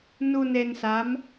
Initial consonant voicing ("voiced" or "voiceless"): voiced